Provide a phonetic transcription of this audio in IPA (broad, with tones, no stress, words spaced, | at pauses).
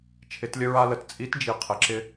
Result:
t͡ʃʰɪ˩˧tlʲə˧ ɹa˧lə˩t t͡sʼi˧˥td͡ʒi˩ qʰɪ˩ǁɪ˧